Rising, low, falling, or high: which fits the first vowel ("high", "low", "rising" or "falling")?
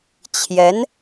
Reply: rising